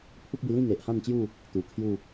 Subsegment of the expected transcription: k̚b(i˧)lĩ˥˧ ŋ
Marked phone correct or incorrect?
correct